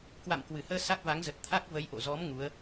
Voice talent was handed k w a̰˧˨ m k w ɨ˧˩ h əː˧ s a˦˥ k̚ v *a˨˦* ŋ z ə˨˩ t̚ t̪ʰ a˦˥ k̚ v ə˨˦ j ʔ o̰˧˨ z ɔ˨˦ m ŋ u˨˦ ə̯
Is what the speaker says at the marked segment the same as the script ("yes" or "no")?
yes